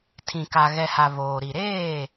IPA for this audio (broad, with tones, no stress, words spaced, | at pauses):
tʰĩ˨ka˨ ɣɛ˨ha˨ voː˨ ɾi˨ɾeː˦˨